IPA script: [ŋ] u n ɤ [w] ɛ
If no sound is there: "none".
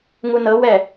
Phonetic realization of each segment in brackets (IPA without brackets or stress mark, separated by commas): ŋ, w